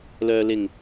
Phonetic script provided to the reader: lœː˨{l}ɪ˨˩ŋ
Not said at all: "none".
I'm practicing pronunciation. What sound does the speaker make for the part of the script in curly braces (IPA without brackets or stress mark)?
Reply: l